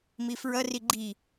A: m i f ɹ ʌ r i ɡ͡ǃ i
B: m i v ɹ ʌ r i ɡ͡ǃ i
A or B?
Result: A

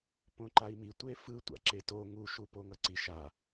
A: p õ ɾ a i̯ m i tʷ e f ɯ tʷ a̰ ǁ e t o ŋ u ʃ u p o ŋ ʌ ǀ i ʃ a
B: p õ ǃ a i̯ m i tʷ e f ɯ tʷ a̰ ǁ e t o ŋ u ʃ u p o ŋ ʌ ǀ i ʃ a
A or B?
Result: B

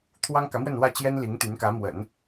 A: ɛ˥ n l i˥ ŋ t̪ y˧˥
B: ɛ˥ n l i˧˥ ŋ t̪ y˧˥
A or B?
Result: B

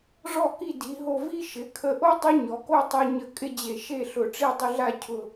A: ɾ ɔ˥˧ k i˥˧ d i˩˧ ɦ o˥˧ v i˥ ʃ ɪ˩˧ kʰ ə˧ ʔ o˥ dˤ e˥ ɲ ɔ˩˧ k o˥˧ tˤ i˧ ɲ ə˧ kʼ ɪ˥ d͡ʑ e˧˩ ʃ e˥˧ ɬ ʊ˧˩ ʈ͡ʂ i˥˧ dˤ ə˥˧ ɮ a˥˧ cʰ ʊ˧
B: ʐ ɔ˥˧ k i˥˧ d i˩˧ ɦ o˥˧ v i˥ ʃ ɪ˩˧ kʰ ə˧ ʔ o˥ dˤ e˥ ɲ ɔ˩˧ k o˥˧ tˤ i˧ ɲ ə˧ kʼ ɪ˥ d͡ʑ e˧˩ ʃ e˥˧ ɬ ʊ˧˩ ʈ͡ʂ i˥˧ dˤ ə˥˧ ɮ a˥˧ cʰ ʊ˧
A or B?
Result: B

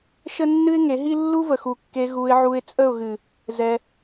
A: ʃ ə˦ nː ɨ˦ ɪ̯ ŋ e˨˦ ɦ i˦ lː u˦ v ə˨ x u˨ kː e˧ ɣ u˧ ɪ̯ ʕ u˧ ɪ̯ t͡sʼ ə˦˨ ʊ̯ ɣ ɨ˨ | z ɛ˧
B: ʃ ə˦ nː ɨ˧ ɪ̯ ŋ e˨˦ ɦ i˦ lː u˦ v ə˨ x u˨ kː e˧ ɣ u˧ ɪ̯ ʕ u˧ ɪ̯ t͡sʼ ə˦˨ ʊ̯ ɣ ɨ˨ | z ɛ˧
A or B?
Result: A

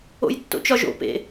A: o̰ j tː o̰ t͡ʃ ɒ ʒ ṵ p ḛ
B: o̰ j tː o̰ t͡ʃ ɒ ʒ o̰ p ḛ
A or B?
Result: B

